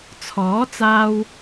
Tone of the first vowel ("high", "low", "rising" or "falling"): rising